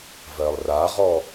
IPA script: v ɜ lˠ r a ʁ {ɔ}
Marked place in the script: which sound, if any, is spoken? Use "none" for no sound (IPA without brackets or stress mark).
ɔ